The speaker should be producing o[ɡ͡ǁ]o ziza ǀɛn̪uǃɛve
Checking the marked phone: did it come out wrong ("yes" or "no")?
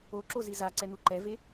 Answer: yes